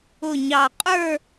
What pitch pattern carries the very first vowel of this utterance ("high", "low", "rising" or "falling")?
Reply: low